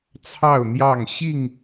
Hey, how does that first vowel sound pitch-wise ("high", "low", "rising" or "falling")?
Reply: falling